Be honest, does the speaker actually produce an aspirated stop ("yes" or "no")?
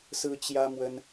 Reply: no